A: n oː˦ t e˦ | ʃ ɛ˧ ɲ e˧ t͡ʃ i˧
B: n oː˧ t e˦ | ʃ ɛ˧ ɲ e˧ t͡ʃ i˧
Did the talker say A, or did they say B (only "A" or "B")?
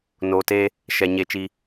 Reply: B